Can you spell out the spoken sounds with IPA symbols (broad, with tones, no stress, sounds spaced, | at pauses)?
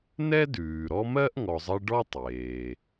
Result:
n ɛ˥ d ʉː˩ ɾ ɔ˦ m ɜ˥ ʔ ŋ ɔ˨ zˤ ɜ˦ ɖ ɔ˥ tˤ eː˩